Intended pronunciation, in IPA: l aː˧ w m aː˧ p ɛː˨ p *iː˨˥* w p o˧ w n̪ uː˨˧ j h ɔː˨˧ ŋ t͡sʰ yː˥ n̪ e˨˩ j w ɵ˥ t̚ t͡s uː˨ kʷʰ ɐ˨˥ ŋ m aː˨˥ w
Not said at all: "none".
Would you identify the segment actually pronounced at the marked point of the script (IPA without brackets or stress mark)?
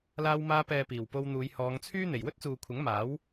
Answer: iː˨˩